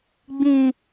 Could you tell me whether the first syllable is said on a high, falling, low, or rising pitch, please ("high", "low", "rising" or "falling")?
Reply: low